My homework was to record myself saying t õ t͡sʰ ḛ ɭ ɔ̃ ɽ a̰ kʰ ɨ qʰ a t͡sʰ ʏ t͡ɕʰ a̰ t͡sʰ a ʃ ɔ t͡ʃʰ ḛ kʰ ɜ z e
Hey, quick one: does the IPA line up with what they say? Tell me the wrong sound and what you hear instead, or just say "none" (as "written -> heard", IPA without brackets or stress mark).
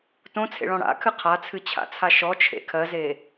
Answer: ʏ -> ɨ